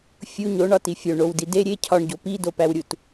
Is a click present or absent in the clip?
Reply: absent